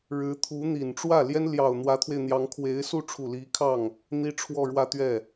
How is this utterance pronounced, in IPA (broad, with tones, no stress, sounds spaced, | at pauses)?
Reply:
ɻ ɻ̩˧˥ t̪ʰ u˧˥ n̪ i˨˩ n ʈ͡ʂ w ä˥˩ l j ɛ˥ n l j ɑ˨˩ ʊ̯ n̪ w ä˧˥ t̪ʰ w e˧ ɪ̯ n̪ j ɑ˧˥ ŋ kʰ w e˧˥ ɪ̯ s u˥˩ ʈ͡ʂʰ u˨˩ l i˧˥ kʰ ɑ˥˩ ŋ | n̪ i˥ ʈ͡ʂʰ w ɔ˥˧ ɻ w ä˥˧ t̪ ɥ ɛ˥˩